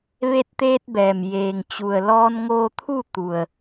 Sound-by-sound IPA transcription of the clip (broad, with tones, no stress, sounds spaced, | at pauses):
ʋ e˧ t̚ t̪ eː˧ t̚ b ɛː˩ m j eː˩ ŋ t͡ɕ u˩ ə̯ l ɔː˧ n ŋ oː˧ t̪ʰ u˥˨ t̪ u˩ ə̯